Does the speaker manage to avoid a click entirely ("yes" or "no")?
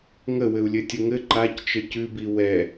no